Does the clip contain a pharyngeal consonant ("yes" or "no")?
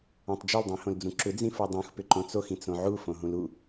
yes